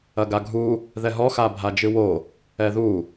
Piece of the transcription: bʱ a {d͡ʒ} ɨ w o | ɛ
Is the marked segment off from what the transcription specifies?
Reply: no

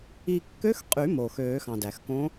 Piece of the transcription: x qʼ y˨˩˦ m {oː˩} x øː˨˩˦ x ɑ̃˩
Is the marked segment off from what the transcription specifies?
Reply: no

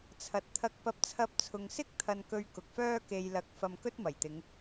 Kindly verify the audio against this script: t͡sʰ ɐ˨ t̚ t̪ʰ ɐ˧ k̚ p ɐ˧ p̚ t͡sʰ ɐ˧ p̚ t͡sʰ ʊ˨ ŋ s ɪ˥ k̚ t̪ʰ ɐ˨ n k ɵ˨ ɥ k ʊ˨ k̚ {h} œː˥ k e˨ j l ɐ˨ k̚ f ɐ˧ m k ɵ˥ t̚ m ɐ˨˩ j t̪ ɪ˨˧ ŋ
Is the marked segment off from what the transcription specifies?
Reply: yes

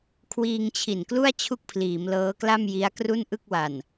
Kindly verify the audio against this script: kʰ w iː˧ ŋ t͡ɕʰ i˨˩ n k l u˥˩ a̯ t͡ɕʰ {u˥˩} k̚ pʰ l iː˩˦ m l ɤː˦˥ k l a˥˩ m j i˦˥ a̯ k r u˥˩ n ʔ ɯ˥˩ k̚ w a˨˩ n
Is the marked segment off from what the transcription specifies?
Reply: no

